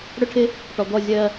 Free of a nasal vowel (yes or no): yes